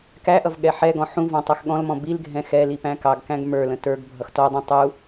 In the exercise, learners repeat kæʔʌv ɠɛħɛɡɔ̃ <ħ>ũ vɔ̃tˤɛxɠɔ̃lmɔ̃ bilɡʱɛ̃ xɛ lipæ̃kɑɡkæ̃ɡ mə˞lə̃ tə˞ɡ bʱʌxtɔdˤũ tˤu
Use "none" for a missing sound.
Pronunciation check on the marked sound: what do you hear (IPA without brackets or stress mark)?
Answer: ħ